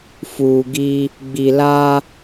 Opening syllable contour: low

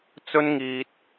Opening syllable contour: high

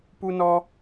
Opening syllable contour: high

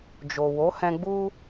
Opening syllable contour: low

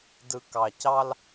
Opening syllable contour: low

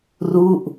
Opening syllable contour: falling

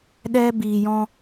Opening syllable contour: high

